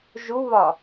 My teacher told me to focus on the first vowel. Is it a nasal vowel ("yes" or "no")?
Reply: no